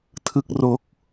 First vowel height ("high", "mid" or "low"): high